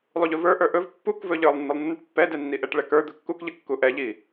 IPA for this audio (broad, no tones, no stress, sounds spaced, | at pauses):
lˠ u ʎ ɵ v ə˞ ʔ ə˞ ʔ ɵ v pː u k v ɵ ʎ ə˞ lˠ nː ə lˠ nː ə ʈ pː ɛ d ɛ nː i ʔ ɛ ʈ ɭ ɛ k ə˞ d̪ ɵ kː u k ʎ ə kː u ʔ ɛ ʎ i